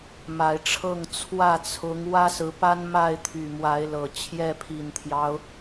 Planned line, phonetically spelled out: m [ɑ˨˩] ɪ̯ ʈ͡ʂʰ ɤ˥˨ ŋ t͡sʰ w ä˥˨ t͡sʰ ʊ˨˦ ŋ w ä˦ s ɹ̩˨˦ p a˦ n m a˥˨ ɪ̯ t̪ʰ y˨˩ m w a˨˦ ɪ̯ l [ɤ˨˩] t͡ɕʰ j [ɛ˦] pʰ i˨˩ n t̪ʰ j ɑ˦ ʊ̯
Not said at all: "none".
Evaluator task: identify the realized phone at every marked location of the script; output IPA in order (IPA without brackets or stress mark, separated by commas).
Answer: a˨˩, ɤ˨˩, ɛ˥˨